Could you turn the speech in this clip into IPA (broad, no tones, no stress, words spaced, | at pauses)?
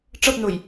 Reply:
ʈ͡ʂʌpnoj